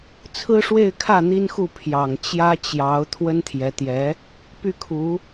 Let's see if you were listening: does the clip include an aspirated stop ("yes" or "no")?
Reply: yes